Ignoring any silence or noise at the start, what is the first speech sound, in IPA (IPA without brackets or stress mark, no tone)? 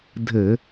dʱ